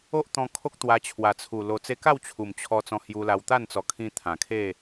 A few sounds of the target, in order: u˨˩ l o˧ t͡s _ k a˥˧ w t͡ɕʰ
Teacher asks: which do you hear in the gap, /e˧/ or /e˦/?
e˦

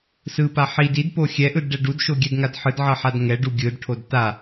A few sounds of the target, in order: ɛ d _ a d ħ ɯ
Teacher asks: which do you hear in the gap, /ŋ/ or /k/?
ŋ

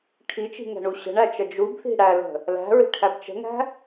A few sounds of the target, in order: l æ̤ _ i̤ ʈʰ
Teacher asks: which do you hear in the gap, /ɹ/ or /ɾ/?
ɹ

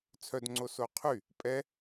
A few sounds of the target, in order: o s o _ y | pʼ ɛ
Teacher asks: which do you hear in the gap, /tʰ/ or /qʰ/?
qʰ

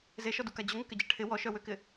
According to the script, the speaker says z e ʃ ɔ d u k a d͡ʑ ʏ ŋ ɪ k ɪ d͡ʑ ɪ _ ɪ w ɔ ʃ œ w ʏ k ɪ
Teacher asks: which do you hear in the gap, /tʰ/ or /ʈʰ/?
ʈʰ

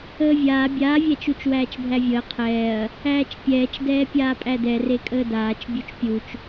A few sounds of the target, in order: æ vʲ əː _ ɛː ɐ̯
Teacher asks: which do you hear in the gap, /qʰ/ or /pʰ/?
qʰ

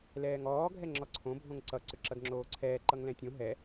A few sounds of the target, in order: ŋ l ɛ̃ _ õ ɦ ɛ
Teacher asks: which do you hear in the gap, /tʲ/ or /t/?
tʲ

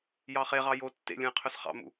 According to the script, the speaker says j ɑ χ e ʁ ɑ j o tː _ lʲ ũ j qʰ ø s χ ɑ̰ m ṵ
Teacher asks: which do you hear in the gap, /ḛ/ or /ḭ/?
ḛ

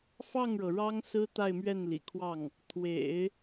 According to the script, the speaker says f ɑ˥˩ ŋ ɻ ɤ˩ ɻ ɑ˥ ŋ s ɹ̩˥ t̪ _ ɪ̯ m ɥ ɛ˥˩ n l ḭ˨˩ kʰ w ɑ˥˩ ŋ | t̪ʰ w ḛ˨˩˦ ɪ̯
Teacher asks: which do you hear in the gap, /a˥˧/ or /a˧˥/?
a˥˧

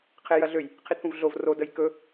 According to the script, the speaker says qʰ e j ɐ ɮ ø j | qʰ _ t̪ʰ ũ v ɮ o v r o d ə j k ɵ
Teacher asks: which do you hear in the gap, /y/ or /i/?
i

